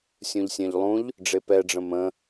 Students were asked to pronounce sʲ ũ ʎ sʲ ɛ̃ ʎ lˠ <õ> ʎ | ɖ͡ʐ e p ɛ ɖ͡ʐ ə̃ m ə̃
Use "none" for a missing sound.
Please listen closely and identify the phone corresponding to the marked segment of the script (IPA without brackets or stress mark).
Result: ũ